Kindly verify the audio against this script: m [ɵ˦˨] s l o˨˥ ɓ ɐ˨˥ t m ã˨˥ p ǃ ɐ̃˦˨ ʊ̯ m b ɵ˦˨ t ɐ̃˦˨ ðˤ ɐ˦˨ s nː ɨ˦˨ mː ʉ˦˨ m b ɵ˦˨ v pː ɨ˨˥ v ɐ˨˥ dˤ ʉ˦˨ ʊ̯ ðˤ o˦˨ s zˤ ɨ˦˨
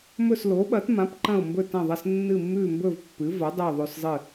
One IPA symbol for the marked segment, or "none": ɵ˦˨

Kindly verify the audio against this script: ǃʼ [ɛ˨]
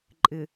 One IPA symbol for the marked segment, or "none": ɪ˨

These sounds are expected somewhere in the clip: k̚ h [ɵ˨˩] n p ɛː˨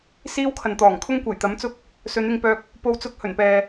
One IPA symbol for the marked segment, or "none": ɵ˨˩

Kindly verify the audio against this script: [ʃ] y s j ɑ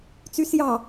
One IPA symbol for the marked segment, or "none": t͡s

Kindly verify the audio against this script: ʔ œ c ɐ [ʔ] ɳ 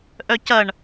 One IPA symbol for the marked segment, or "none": none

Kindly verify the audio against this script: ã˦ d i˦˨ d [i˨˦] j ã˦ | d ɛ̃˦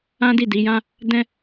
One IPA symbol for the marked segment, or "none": i˨˦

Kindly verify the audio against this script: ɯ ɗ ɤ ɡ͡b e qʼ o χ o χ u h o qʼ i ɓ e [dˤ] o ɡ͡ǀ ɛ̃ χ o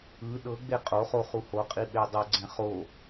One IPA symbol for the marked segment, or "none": dˤ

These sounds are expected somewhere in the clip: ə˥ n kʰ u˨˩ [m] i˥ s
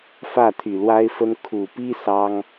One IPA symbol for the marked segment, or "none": p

